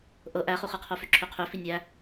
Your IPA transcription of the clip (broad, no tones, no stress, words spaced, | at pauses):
ʔɤ ʔæχuχɤqʰo føǁʰøqʰø finʲæ